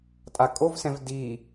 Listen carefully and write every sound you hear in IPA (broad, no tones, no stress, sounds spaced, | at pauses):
tʼ a kʼ o v s ɛ̃ v d i